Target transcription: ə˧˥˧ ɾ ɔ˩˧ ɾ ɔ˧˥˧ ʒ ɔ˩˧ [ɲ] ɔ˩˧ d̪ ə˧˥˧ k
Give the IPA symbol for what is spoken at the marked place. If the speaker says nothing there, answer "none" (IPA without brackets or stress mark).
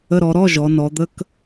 n